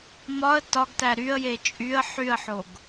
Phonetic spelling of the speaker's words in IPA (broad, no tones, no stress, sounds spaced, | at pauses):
m ɒ ə̯ t ɒ ɡ t æ ɾ y ə̯ j e t͡ʃʼ y ə̯ ħ y ə̯ ħ o ɡ